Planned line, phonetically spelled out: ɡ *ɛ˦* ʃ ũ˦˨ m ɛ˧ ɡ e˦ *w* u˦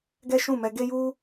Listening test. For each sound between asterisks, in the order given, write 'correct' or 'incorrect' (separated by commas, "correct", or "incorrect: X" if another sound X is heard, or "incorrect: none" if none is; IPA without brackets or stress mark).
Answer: correct, incorrect: j